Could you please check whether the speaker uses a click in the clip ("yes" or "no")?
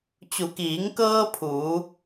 no